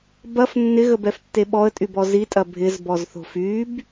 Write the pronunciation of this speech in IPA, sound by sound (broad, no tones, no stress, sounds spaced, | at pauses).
b ɐ f nː ɪ ɣ ə b ɛ f tː e ɓ ɔ ə̯ tʼ y b ɔ z i tʼ ɐ bʱ ɪ z b ɔ z θ o̤ f y b